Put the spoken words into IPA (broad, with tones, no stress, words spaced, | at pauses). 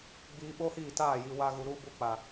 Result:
ɡ͡biː˧ɓo˦hiː˦˨taː˦˨ ji˨wa˧ɣu˨ ɾu˦ bu˧k͡pa˨